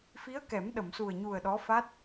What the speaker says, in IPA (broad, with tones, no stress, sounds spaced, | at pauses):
f i˧˥ ə̯ k ɛ˨˩˦ m ɗ ə˨˩˨ m s u˨˩ ə̯ ɲ u˨˩ ə̯ ɗ ɔ˧˥ f a˦˥ t̚